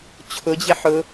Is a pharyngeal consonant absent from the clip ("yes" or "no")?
no